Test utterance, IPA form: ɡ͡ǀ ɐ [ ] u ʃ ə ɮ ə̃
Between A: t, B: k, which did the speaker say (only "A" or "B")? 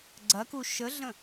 B